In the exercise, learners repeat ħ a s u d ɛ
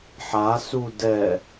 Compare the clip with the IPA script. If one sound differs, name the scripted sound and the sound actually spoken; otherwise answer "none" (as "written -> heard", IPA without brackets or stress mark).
none